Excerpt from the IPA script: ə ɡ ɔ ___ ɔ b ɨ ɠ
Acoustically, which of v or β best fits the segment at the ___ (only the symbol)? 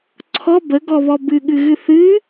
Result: β